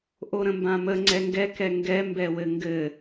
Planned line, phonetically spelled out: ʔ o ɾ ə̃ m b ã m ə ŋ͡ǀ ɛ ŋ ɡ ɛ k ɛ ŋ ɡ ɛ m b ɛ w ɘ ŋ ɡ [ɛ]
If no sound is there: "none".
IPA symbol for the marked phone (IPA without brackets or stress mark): ɘ